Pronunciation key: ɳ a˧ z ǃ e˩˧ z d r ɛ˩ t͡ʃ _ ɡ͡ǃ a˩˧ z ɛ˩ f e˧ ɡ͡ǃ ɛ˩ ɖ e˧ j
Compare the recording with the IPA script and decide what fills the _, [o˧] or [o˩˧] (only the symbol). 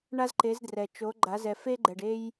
o˩˧